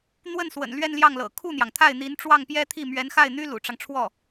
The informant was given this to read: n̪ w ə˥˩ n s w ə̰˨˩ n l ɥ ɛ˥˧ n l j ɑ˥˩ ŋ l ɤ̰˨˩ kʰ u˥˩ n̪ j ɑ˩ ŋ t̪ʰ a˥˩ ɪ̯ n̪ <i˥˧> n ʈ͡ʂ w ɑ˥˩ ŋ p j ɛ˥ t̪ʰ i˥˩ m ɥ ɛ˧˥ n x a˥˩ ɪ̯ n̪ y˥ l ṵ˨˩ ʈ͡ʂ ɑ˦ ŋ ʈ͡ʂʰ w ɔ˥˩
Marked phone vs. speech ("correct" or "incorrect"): incorrect